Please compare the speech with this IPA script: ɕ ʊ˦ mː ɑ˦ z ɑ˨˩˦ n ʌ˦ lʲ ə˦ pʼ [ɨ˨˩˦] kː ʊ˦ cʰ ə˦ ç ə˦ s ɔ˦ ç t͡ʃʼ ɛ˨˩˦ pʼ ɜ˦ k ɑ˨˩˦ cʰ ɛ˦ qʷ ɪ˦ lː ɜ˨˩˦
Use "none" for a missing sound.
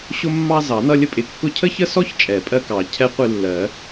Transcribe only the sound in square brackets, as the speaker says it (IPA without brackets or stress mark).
ɪ˨˩˦